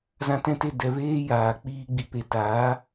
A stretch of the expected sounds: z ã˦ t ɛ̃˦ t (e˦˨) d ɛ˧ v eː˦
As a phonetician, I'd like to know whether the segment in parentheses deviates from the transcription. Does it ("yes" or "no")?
no